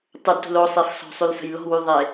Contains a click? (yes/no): no